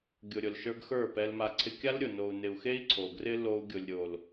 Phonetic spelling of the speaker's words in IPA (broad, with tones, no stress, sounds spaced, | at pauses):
ɡʲ ʊ˨ ɾʲ ʊ˨ l ʃ ə˞˧ ɡ x ə˞˦˨ p ɛ˧ l m a˧ ǀʰ ɪ˧ kʲ a˦ l ɾʲ ʊ˨ n o˨ u̯ n ɪ˨ u̯ x e˦ i̯ ǀʰ o˨ ɡ r ɪ˦ l o˦ u̯ ɡʲ ʊ˨ lʲ ɾʲ o˨ l